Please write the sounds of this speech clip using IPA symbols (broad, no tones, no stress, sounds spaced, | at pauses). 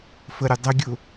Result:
f ə ɾʲ ʊ dˤ ə ɡʲ ʊ